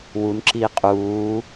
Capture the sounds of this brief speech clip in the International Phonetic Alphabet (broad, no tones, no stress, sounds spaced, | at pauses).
w u n ǁ i qʼ uː